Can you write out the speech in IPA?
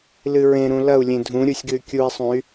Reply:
lɨɹẽɾũ lɐu̯lʲẽ dʱũ ɾʲusʲɡɨy̯kʲui̯sˤũy̯

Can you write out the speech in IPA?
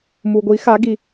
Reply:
mu˧ɡʷi˧˥xa˧˥ ɡi˧

